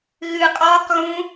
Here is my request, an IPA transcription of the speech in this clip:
ɣɨ qʼɔːq ɣũ

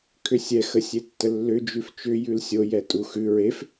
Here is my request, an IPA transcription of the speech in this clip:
kʰʏsʲɛ xəsʲetːəlːʏ d͡ʒʉft͡ʃʏ jʉlsʲo jɛtʼuxʉ ɹef

